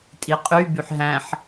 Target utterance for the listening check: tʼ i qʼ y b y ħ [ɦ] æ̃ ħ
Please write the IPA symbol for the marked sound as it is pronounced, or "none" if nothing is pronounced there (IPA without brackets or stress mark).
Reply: ɦ